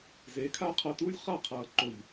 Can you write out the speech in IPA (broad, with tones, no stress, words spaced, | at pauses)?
zeː˨˦kʰaː˦ qʰʌː˧tuː˦lʲ χa˦˨qʰʌː˨ǃo˨ʎ